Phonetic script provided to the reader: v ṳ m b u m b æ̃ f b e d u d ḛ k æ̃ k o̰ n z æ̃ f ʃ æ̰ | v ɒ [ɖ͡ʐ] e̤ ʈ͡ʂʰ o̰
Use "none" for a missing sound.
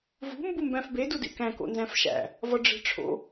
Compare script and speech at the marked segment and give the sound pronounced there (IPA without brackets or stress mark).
ɖ͡ʐ